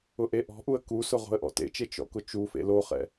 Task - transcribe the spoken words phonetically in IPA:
ʊ ʔ e ʔ ɔ̤ ʔ u ə̯ k u s ʊ ʁ o̤ ə̯ ʔ ɔ̰ t ḛ t͡ʃ e t͡ʃ ɔ̰ k ʊ t͡ʃ u f ḛ l o χ ɛ̰

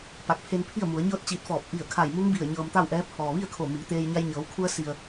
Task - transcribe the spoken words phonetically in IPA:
p a˧˩ k̚ pʰ e˧ n pʰ i˥˨ ə̯ m u˩˧ ə̯ ɲ ɤː˥˨ t̚ t͡ɕ iː˧ t̚ f ɔː˧˩ p̚ ʔ i˧˩ ə̯ kʰ a˧˩ j m u˧˥ ŋ b i˧˩ ə̯ ɲ ɤː˧ m t̪ a˥˨ w ʔ ɛː˧˥ pʰ ɔː˩ ʋ i˥˨ ə̯ kʰ o˧˩ m iː˩˧ t̪ eː˧ j ɲ a˧ j ɲ ɤː˩˧ w kʰ u˧ ə̯ s i˩ ə̯

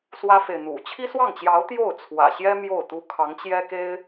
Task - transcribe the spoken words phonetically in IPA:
s w ä˥ f e˨ ɪ̯ n̪ ṵ˨˩ t͡ɕʰ i˥ s w ɑ˥˩ ŋ t͡ɕ j ɑ˧˥ ʊ̯ t̪ j o˥˩ ʊ̯ t͡sʰ w ä̰˨˩ ɕ j ɛ˥ m j o˥˩ ʊ̯ t̪ u˥ kʰ ɑ˧˥ ŋ t͡ɕ j ɛ˥ k e˥ ɪ̯

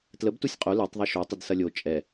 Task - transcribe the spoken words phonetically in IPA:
t l ə b t u sʲ qʼ o l e tˤ ðˤ i ʃ o tˤ ə d s ɐ lʲ o t͡ʃʼ ɛ

